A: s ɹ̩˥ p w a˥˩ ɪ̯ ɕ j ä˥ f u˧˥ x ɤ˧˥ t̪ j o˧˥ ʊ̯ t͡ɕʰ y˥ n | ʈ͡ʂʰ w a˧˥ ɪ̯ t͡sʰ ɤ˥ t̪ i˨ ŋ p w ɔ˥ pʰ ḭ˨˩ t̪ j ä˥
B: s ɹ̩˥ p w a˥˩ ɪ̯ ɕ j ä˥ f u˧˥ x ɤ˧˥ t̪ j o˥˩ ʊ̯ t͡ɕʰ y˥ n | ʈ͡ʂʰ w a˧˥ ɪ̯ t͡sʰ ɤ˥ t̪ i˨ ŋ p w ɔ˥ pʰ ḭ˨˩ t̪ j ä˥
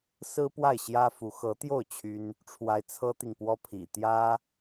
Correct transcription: B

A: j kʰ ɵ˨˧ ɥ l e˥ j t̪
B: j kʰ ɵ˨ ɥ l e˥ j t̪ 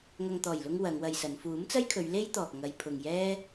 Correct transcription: A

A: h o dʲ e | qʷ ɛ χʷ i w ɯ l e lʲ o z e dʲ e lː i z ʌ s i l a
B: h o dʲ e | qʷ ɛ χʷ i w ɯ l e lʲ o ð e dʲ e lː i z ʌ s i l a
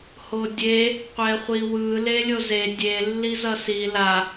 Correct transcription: A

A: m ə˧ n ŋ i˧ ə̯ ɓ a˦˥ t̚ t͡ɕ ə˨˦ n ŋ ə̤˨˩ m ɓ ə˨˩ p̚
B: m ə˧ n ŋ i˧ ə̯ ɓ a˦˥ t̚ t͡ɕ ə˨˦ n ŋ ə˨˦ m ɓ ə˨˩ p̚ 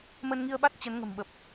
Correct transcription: A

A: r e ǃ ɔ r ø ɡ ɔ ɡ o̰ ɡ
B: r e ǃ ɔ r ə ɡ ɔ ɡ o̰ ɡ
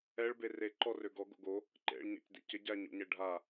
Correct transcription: A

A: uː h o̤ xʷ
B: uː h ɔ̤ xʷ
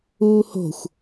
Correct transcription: A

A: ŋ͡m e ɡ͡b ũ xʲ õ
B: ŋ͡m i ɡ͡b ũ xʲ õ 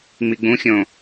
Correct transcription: B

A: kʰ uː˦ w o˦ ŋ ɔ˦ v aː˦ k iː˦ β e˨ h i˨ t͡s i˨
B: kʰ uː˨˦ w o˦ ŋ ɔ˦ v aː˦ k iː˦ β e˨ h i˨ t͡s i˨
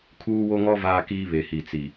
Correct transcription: A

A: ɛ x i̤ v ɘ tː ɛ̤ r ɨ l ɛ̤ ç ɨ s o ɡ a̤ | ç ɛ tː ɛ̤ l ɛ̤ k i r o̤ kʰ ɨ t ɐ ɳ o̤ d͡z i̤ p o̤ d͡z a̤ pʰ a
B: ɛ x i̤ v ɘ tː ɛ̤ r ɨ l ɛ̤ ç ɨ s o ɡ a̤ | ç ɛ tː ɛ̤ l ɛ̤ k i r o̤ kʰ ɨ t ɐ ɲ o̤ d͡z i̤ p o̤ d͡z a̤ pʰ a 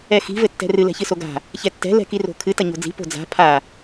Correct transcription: B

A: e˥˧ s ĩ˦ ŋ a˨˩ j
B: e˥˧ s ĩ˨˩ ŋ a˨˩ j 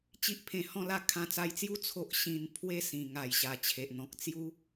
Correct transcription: B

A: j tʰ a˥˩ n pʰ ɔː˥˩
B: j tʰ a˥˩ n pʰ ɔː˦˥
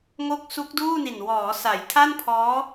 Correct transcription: B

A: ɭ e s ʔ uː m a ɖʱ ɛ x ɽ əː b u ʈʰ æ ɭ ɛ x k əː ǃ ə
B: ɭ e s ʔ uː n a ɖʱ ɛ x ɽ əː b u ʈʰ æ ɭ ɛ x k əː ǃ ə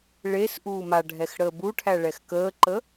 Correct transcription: A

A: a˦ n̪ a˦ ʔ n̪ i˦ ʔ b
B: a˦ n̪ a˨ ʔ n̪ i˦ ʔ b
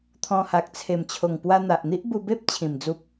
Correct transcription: B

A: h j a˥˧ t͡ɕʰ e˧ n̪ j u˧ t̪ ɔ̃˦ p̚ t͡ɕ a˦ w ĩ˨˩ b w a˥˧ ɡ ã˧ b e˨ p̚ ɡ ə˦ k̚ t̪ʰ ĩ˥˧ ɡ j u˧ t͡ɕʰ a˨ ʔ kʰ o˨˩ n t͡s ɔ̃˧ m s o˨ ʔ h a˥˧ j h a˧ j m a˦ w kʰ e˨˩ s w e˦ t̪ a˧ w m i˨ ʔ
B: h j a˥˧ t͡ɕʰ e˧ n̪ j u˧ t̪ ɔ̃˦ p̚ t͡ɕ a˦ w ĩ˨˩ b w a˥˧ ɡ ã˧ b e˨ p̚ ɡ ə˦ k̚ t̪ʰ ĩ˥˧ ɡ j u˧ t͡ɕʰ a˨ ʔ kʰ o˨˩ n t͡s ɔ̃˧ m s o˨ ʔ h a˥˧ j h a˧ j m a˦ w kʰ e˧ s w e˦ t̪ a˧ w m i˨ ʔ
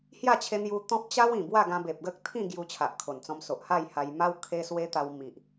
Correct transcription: B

